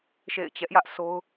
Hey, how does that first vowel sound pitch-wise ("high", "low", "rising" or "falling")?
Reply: falling